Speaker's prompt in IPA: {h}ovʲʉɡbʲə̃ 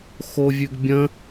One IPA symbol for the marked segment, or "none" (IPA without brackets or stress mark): x